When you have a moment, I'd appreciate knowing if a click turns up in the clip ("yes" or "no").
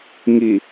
no